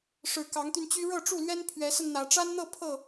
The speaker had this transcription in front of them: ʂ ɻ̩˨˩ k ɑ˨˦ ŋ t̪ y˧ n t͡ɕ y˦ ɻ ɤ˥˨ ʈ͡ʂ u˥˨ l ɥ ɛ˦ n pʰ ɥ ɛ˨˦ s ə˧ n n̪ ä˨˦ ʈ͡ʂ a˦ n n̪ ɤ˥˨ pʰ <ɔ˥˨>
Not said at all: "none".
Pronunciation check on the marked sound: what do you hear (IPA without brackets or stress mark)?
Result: ɤ˥˨